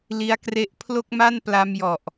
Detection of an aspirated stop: present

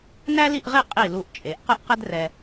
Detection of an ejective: present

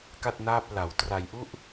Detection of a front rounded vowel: absent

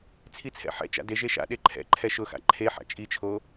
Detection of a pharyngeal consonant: present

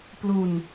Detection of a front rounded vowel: absent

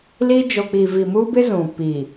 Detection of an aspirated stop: absent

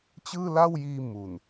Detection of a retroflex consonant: absent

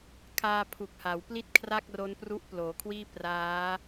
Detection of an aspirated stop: present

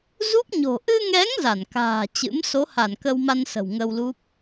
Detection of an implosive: absent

